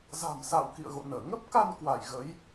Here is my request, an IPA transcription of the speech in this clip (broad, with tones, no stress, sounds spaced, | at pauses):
z a̤˨˩ m s a̰ː˧˨ w k ḭ˧˨ ə̯ ɣ o̰˧˨ n əː˧˩ ŋ ə˦˥ p̚ k a˧ n k w a˧˩ j ɣ ə˨˦ j